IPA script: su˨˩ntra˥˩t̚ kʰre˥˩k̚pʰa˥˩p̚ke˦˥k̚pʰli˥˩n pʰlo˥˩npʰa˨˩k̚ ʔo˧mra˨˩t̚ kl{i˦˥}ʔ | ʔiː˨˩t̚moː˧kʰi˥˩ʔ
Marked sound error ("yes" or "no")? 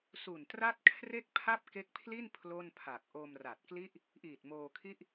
yes